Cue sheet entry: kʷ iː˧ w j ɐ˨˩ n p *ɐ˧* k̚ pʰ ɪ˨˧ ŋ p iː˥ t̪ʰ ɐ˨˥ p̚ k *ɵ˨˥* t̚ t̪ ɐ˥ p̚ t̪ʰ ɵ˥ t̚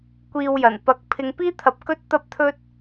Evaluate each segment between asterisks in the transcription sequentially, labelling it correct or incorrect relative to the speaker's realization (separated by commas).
incorrect, incorrect